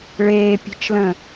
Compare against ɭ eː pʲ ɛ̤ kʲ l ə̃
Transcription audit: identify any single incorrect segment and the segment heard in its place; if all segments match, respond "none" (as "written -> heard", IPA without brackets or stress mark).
kʲ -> t͡ʃ